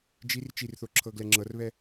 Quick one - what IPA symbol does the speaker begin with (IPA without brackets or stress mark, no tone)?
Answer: d͡ʒ